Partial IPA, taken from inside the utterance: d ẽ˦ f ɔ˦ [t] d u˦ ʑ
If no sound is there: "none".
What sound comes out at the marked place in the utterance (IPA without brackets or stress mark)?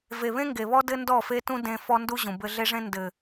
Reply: n